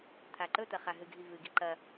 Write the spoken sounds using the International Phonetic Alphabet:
t̪ʰ a ǃ ɵ t̪ ɐ χ a ɦ ɨ ɡʱ i v ɨ ɡ i ǃ ɐ

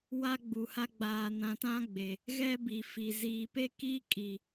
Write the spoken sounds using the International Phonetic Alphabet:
w a˦ ɡ͡b u˨ h a˦ ɡ͡b aː˨ n ã˨ t ã˦ ɡ͡b e˨ | ɣ ɛ˦ b i˨ f i˨ z iː˨ p e˦ k iː˦ kʼ i˨

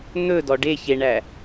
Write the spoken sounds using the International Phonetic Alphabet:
n̪ ɵ d ɔ ɖ e ç e ɳ æ

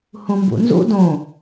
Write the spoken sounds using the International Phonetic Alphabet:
h ũ m b ṵ n z ṵ d õ

